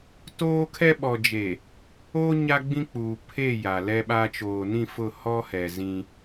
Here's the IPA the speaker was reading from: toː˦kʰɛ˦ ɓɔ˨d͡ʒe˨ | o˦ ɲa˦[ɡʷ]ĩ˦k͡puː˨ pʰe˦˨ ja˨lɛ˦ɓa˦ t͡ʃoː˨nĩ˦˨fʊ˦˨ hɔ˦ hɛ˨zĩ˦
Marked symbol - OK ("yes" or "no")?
no